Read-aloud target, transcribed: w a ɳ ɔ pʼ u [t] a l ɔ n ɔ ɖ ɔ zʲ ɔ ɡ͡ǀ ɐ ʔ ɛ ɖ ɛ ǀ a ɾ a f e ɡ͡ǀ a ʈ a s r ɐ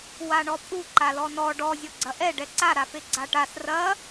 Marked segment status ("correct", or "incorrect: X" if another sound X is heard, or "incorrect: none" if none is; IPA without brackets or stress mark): incorrect: ǃ